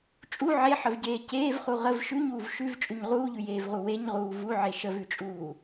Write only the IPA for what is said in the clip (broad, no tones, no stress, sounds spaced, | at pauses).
t͡ʃʼ u ʕ e ħ ə v ɟ eː c eː v χ u ʁ ə v ʃ ʉ ɲ uː v ʃ ʉ v t͡ʃʼ ʉ ɲ ʁ uː ʎ ʉ j eː v ʁ u w e ɲ ʁ uː v u ʕ e ʃ ə v ʉ t͡ʃʼ uː